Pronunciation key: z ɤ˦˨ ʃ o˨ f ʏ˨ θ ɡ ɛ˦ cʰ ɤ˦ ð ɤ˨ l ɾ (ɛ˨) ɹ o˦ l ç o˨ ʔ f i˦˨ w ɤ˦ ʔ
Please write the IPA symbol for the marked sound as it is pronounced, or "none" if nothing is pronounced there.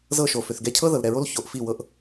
ɛ˨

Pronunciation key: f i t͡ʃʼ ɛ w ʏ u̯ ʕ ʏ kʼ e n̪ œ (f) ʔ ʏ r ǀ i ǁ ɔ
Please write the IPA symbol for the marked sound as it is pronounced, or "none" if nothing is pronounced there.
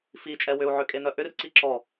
none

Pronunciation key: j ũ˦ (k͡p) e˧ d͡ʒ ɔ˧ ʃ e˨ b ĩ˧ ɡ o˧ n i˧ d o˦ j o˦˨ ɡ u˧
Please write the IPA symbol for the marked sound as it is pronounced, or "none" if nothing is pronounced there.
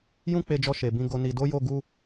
k͡p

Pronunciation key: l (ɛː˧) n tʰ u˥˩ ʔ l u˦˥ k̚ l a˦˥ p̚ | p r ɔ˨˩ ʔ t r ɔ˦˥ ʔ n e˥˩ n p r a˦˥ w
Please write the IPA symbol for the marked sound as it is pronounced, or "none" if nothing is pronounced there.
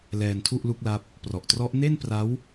ɛː˧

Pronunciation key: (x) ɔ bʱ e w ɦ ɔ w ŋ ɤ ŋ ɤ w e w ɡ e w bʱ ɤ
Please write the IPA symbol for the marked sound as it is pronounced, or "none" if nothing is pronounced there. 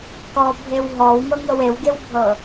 k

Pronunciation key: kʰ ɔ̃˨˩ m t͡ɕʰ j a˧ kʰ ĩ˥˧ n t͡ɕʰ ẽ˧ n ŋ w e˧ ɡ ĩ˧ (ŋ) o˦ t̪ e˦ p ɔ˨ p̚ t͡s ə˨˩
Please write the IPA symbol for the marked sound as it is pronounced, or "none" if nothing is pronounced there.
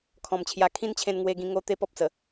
ŋ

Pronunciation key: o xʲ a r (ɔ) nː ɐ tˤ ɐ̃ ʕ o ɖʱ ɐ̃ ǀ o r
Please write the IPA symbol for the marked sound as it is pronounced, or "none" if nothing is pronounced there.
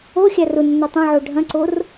ʊ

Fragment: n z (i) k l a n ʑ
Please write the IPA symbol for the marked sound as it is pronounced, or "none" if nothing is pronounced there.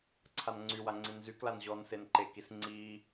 y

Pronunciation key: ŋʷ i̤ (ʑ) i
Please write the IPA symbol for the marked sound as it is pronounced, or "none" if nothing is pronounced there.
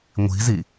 z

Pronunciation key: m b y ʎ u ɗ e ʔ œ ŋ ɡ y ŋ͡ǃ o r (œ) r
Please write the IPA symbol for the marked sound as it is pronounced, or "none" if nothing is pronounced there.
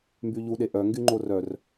œ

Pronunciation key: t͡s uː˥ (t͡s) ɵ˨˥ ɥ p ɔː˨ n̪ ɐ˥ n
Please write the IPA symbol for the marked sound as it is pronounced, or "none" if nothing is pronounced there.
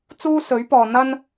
s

